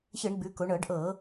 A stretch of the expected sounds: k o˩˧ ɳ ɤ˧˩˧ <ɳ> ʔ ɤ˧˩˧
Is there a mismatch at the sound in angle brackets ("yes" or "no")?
yes